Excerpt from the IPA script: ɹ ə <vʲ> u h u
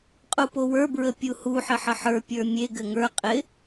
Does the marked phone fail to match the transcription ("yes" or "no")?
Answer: yes